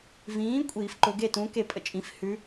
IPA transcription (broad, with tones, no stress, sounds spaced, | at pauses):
v ĩː˨˥ kʷʼ iː˨˩˦ f ǃ ʊ˨˩˦ ɡ e˥˨ t ũ˨˥ k e˥˨ pʼ ə̰˥˨ t͡ʃʼ ĩ˨˥ f h ʉ˨˥